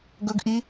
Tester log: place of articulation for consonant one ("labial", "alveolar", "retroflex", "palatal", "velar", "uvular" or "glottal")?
velar